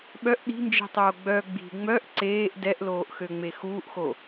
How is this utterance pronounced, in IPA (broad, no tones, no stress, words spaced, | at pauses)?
ɓœʔ ɗi̤nd͡ʒi̤tˤoː ɡ͡bœ ɡ͡bi̤ ŋ͡mœʔ ǀeːʔ dɛʔloːʔxøŋ͡me xuːʔxo